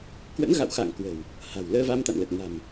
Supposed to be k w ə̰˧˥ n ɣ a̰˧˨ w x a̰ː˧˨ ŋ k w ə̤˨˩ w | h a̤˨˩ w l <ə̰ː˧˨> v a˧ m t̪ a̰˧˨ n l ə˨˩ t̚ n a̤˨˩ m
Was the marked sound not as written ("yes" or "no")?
yes